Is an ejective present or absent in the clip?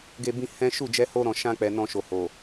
absent